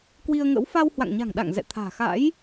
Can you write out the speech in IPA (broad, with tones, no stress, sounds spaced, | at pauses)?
k w i˧ ə̯ ŋ ə̰˧˥ w f a˧ w h w a̰˧˨ ŋ ɲ a̤˨˩ ŋ ɗ a̰˧˨ ŋ z ɛ̰˧˨ t̪ʰ a̤ː˨˩ x a̰˧˥ j